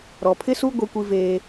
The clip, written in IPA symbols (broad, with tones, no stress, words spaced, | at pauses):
ɾɔ˨pʰɪ˦su˦ ɡʷe˦kʷi˦veː˦